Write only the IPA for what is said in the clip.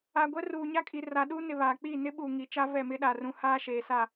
a˨ ɡʷ ɛ˦ r uː˨ ɲ a˦ kʼ i˨ r a˨ ɗ uː˦ n ɪ˨ β aː˨ k͡p iː˦˨ n ɪ˦ ɓ uː˨ ŋ i˨ t͡ʃ a˦ v ɛ˦˨ m ɪ˦ ɗ a˨ r ũ˨ h aː˦ ʃ eː˨ s a˦˨

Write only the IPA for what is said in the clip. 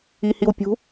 i h i w pʲ ṳ

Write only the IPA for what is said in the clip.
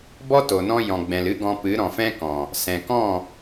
b ɔ˦ t o˨ n ɔ̃˧ j ɔ̃˨ ɡ͡b ɛ̃˨ l ɨ˦ ɡ ɔ̃˧ p ɨ˨˦ ɾ ɔ̃˨ f ɛ̃˦ k ɔ̃˨ | s ɛ̃˨ k ɔ̃˦˨

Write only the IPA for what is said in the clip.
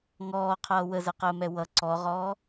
ŋ ɔː qʰ ʌː w ə z ɛ q əː m ɛ w ʌ ǀ ɔ ʁ ɔː

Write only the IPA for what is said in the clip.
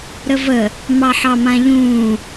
ɾ ə v ə | m ɑ ħ ɑ m ã ʎ ũː

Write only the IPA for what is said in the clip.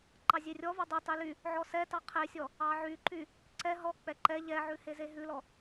ǃ ɑ zʲ e rʲ ɔ v ɑ dˤ y tˤ y l y | ʕ ɔ s ɛ t ɑ qʰ e sʲ ɔ | ɑ ʕ y ǃ y | ǀ ɛ ɦ ɔ k͡p ɛ ǃ ɛ ʎ ɛ ʕ ʉ h e z e ɦ ʉ l ɔ

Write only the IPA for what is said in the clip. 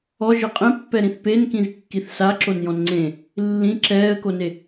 ɔ ʒ ɤ qʼ ɛ̃ pː ɛ ɾ ĩ θ p e n k ĩ z kː i θ s a ǁ o n j ɔ̃ n ŋ͡ǀ ẽ | lː ĩ ǁ ɛː ə̯ k o n e

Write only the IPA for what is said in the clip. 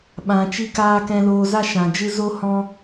ɓ ã˨ t͡ʃ i˧ k aː˧ k ɛ̃˧ l oː˧ z a˦ ʃ ã˨ d͡ʒ ɨ˦ z o˦ h ɔ̃˦

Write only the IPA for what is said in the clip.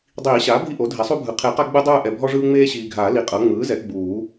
dˤ iː˨˩˦ ɕ aː˩˥ bʱ i˦˨ ʔ o˩˥ dʱ ɛ˩˥ sˤ u˦ bʱ ɯ˨ qʰ e˨˩˦ q a˦ ɡ͡b ɯ˦ dˤ ɯː˦˨ ʔ ɛ˨ bʱ ɔ˦ ʐ ɯː˦ ŋ͡m eː˦ ɕ iː˨ ɡʱ aː˨˩˦ l i˨ qʼ ɤ˩˥ ŋ͡m ɯː˩˥ z ɛ˩˥ ɡ͡b uː˨˩˦

